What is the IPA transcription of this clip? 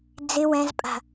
d͡z ɪ w ɛ̃ z pʼ a̤

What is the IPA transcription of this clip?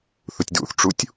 θ u tʲ d ṵ θ ʈ͡ʂ u tʲ

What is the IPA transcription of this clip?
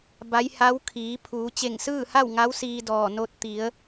b a˧˥ j h a˧˥ w kʰ iː˩˧ pʰ uː˩˧ t͡ɕ e˧˩ ŋ s ɯː˥˨ h a˥˨ w ŋ a˧˥ w s iː˧ d ɔː˧˩ n o˧ t̚ t̪ i˩˧ ə̯

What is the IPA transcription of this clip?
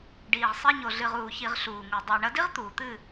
ɖ iː˨ ʁ sˤ i˧ ɲ o˨ ɮ ɨ˨ ʁ uː˨ ç i˨ ʁ ɬ uː˨ ŋ u˨ dˤ ɘː˨ ɳ ɐ˧ d i˦ ʁ t̪ uː˨ t̪ ɨ˦˨

